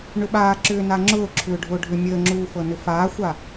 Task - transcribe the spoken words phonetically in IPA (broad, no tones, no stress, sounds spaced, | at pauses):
ɳ ʏ ɓ aː ǁ ʏː n a ŋ͡ǁ ʊː ǁʰ ʏː ɖʱ ʊː ɖʱ ʏ mʲ əː ŋ͡ǁ uː f ɤ n ʏ f aː xʷ a